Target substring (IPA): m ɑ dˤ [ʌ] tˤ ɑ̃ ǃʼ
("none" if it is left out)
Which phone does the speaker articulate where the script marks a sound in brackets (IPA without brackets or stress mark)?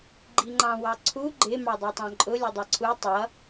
ə˞